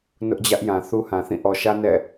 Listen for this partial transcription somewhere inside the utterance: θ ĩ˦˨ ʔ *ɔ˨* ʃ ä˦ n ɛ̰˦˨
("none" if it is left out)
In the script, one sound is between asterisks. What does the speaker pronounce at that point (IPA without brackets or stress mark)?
ɔ˨